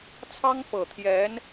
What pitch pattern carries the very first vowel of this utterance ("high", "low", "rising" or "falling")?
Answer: high